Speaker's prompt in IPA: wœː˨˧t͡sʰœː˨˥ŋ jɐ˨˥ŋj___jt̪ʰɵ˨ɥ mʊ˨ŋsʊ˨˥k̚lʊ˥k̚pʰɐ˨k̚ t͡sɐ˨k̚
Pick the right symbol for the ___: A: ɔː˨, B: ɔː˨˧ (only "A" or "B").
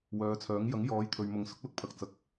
B